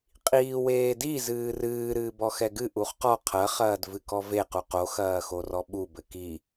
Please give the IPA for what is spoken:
qʼ iː w eː d i z ɨː r ɨː ɾ ɨː b ɔ x ɛ ɡ ɨ ʔ u χ q ɔ qʰ ɐ χ ɐː d v ɨ k ɔ v e q u q o x ɐː x o r ɔ ɓ u b ɘ k i

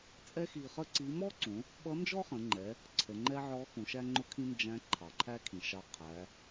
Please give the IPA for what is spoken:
t͡sʼ ɛ˥ x i˧ χ ə˥ ǀ i˧˥ m ɔ˥ ǀ ũ˩˧ | ɓ ʌ˧˥ n d͡ʒ ɔ˥ χ ə̃˩˧ ŋ͡ǃ ɛ˩˧ | ǀʰ ə˩˧ ŋ͡ǃ ɛ˥ ʕ ɔ˧˥ x ũ˩˧ ʃ æ˥ ŋ͡ǃ ʊ˥ kʰ ĩ˥ n d͡ʒ æ̃˧˥ ǃʰ ɑ˩ ǃʰ æ˥ kʰ ĩ˩ ʃ ɑ˧ qʰ æ˩˧

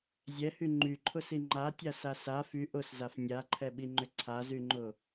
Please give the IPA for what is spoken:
zʲ ɛ h y ŋ͡ǃ y ǃʰ ʊ s i ŋ͡ǃ a tʲ a s a s a f y ʔ ʊ s z a f nʲ a ǃʰ ɛ ɓ i ŋ͡ǃ ʏ ǀʰ a z y ŋ͡ǃ ʊ

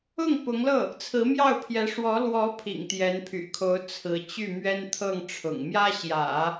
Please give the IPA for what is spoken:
ʊ˥˩ ŋ p ʊ˧˥ ŋ l ɤ˥˩ | t͡sʰ ɹ̩˧˥ m j ɑ˥˩ ʊ̯ pʰ j ɛ˧˥ ʂ w ɔ˧˥ l w ɔ˧˥ pʰ ḭ˨˩ ŋ t̪ j ɛ˧˥ n pʰ y̰˨˩ kʰ o˧˥ ʊ̯ t͡sʰ ɹ̩˧˥ t͡ɕ y˥˩ m ɥ ɛ˥ n t̪ʰ ɤ˥˩ ŋ ʈ͡ʂʰ ʊ̰˨˩ ŋ m j ä˥ ɕ j ä̰˨˩˦

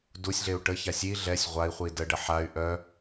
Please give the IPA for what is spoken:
d u sʲ ɮ e u̯ ʈ ə ç a sʲ i ɮ ɛ sʲ ʁʷ a i̯ χʷ i d ə ɖ ə ħ a y̯ ʔ œ

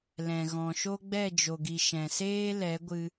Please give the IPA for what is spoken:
l ɛ̃˨ ɣ ɔ̃˨ ʃ o˦ ɡ͡b ɛ˦˨ d͡ʒ o˨ ɡ i˨ ʃ ɛ̃˨ s eː˦ l ɛ˨˦ ɡʷ ɨ˧

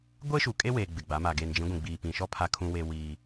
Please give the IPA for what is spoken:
ɡʷ e˦ ʃ u˨ kʼ e˦ w e˨ ɡ͡b ɪ˨ ɡ͡b a˨˦ m a˨ ɡ eː˨ n d͡ʒ ĩ˨˦ ɡʷ ĩ˨ ɡ͡b iː˨ p ĩ˨ ʃ ɔ˦ pʰ a˦ kʰ ũ˦ w e˦ w iː˦

